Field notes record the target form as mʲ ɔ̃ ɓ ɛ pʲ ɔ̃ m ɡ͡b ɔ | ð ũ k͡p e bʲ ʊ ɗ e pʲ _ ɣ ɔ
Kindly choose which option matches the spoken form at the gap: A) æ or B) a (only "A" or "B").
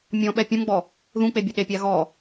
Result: B